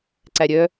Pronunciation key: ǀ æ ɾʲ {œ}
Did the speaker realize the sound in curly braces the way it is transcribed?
yes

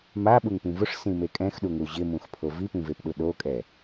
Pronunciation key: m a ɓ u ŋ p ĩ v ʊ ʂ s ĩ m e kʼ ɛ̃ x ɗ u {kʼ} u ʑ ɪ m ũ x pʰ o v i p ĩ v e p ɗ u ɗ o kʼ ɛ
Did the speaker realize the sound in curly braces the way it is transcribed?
no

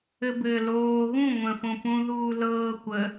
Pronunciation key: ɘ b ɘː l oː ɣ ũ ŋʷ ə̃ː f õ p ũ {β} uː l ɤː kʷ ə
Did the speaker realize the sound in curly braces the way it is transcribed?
no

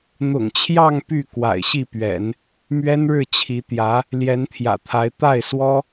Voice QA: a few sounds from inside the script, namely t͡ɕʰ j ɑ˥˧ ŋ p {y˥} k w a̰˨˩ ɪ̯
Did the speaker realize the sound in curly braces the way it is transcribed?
no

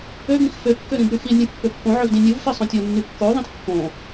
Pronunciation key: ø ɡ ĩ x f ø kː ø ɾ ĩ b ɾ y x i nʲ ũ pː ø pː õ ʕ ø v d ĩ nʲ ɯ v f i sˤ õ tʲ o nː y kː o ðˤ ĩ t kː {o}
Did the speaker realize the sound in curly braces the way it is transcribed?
no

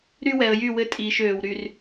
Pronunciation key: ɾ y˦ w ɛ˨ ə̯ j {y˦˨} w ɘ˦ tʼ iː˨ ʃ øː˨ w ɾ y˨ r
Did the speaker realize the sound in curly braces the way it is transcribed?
yes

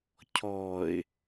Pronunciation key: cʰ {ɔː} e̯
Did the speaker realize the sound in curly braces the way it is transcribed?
yes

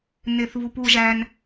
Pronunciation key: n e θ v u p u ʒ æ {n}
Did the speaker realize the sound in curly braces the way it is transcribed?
yes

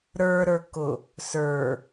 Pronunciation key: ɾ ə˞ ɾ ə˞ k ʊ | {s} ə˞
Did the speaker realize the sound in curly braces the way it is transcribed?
yes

